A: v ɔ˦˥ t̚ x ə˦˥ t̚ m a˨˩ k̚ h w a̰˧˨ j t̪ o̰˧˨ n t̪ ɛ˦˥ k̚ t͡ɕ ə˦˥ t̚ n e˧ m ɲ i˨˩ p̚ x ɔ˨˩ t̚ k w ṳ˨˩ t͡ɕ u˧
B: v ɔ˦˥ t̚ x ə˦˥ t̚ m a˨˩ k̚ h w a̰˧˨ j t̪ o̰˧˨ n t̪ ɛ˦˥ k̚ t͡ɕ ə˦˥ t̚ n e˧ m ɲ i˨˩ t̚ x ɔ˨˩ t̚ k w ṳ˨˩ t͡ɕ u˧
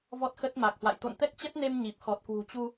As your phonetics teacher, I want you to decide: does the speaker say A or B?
A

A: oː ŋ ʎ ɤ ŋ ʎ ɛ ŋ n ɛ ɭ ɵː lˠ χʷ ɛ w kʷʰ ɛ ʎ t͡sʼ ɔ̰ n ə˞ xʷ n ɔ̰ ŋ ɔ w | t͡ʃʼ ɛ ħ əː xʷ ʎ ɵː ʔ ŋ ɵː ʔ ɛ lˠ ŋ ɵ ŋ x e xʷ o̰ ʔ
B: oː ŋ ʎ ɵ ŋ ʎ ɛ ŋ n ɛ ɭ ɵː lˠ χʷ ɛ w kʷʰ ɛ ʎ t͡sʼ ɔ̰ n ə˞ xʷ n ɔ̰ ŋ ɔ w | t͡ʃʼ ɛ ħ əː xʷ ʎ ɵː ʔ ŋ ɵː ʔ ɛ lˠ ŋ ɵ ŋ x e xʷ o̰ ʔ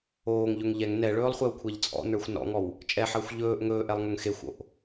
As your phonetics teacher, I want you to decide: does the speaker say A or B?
B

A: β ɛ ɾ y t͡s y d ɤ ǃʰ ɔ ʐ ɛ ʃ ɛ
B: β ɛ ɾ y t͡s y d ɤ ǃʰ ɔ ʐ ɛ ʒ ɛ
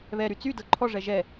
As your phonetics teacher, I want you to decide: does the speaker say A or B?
B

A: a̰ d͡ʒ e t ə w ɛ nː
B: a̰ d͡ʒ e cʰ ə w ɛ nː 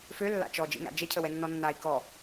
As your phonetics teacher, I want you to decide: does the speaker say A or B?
B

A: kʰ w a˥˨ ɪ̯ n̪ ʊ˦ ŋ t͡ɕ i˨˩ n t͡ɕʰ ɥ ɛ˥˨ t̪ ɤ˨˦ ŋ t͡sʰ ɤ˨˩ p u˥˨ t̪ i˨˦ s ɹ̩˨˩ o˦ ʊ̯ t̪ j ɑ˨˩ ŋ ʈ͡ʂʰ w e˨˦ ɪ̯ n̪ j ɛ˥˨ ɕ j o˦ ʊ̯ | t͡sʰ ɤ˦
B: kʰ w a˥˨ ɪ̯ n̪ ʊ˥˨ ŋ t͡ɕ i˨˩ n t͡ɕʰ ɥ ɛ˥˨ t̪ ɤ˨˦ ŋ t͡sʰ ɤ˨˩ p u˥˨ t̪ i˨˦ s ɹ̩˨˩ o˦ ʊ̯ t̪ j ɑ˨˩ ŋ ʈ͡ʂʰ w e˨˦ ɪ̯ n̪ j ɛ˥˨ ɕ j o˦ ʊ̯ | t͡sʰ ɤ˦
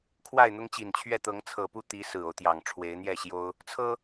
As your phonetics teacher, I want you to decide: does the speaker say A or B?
A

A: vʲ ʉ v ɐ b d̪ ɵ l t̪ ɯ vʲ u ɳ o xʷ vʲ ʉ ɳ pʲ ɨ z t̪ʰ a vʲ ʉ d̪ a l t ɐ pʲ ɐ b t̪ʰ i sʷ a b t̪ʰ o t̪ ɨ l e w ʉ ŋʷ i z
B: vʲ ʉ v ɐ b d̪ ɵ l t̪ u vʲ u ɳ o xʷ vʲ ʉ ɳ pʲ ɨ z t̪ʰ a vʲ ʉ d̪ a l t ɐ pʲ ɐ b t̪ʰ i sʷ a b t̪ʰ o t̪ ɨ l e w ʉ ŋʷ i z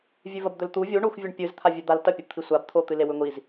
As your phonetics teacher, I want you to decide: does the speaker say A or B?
B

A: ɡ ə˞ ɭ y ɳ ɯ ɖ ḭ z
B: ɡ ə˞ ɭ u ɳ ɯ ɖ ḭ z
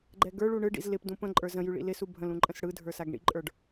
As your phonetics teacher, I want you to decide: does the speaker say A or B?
B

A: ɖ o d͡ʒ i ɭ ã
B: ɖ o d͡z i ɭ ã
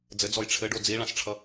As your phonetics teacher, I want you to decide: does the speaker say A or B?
B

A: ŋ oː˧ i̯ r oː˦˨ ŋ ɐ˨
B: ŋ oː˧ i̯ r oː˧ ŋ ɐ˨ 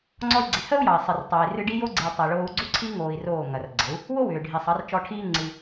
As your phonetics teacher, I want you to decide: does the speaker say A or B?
A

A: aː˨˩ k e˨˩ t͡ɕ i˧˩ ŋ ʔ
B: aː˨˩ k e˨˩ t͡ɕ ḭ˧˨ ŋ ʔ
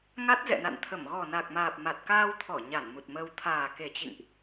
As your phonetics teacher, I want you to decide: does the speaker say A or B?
B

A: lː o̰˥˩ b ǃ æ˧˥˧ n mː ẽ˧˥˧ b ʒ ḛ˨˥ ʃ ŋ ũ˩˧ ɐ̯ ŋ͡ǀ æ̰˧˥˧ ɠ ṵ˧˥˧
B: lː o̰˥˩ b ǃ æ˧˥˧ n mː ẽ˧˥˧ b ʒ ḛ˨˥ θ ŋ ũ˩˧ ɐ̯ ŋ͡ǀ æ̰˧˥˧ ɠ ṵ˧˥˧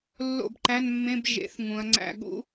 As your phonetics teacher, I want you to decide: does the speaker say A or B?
B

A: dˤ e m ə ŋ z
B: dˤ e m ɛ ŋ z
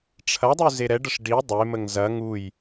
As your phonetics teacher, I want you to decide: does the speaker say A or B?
A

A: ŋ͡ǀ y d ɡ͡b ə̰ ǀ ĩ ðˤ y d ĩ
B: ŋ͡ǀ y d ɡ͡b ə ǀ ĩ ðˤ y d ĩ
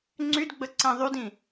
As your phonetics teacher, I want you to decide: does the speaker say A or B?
B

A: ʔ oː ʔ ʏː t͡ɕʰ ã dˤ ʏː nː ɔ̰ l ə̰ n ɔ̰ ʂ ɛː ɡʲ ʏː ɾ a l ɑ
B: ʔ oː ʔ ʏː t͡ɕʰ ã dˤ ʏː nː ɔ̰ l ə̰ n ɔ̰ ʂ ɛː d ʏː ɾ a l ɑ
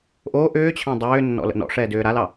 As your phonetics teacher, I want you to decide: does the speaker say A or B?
B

